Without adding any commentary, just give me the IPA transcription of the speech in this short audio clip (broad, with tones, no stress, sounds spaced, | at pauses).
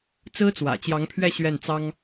t͡s ɹ̩˥ t͡s w ä̰˨˩ t͡ɕ j ɑ˧˥ ŋ pʰ ɥ ɛ˥˧ ɕ ɥ ɛ˥˩ n t͡s ɑ˥ ŋ